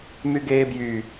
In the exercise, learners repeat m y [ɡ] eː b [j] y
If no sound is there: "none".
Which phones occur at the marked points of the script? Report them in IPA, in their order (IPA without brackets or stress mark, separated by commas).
ɡ, j